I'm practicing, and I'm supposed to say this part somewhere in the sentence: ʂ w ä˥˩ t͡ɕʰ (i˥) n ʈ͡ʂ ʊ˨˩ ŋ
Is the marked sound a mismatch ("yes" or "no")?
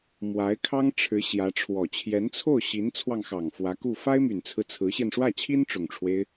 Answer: no